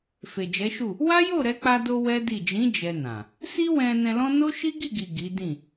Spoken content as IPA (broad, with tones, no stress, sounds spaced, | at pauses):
f e˨ d͡ʒ ɛ˨˦ ʃ u˦˨ | w a˦ j o˦˨ ɾ ɛ˧ k͡p a˧ d o˧ w ɛ˦ d i˦˨ d͡ʒ ĩ˨˦ d͡ʒ ɛ˧ n ã˨ | s i˦ w ɛ̃˧ n ɛ̃˧ l ɔ̃˦ n o˦ ʃ i˦ ɡ i˦˨ ɡ i˨ ɡ i˨˦ d ĩ˦˨